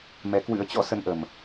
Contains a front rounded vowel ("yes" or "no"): no